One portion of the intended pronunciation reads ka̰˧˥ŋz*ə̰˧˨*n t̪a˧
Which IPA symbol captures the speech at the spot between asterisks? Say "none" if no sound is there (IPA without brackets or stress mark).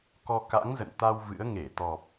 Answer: ə̰˧˨